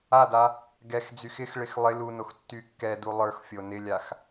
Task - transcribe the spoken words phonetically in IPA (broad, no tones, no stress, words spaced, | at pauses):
ada | ɡɛx d͡zyxɪxɭɪx lˠɪ lunox tːykːɛdu lˠə˞xfʲo nɪlʲax